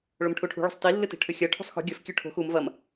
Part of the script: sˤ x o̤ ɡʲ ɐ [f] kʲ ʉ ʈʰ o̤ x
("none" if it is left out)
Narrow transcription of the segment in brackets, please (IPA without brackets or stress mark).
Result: f